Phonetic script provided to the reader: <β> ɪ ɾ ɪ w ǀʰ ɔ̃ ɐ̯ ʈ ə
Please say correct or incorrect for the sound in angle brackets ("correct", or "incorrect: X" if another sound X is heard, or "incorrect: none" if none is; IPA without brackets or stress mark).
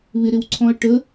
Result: correct